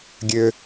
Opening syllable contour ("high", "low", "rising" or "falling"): low